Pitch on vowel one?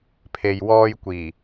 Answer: low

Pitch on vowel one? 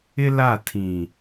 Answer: high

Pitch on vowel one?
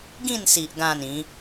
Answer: falling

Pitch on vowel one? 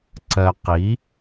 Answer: low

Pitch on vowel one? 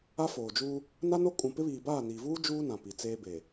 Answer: high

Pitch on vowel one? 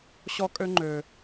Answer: high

